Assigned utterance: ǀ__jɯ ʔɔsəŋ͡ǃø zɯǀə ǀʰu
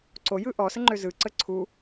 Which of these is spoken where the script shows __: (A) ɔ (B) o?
B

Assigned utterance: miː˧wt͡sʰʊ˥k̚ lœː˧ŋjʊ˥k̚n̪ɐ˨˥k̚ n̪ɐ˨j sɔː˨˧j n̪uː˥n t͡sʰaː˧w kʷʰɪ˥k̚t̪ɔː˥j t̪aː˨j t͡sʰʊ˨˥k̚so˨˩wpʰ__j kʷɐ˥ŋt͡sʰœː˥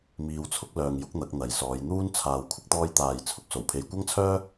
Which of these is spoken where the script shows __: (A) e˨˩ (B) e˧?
B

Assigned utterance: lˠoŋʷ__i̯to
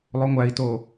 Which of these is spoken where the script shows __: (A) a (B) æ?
B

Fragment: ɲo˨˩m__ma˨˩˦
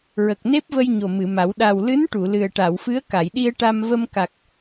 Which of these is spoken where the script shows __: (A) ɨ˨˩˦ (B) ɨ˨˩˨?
B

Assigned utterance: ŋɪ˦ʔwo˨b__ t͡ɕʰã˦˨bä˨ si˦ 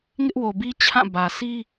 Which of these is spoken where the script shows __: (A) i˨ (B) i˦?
B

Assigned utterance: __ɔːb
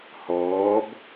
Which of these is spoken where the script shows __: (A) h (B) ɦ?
A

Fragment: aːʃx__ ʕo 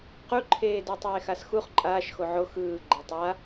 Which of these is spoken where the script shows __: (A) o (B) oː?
A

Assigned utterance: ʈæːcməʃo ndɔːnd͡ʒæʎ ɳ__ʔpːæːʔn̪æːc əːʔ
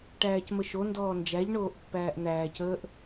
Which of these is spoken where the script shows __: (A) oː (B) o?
A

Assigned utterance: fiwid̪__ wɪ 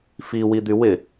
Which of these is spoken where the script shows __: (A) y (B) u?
A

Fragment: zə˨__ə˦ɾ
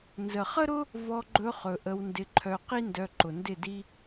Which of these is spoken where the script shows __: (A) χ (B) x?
A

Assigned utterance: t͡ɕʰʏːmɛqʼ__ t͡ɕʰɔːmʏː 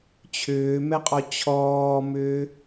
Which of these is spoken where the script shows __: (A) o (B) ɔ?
B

